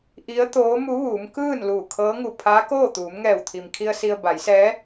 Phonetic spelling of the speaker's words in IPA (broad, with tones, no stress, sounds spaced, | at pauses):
ʔ i˧˥ ə̯ t̪ oː˧˥ m u˧˥ ʋ uː˩˧ m k ɯː˥˨ n l uː˧˩ kʰ ɤː˧˥ ŋ u˧˩ pʰ aː˧˥ k oː˥˨ t̪ uː˩˧ m ŋ ɛː˧˩ w t̪ʰ i˩ m kʰ i˧ ə̯ s i˧ ə̯ b a˩˧ j s ɛː˧˥